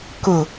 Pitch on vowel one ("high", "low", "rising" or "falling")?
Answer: low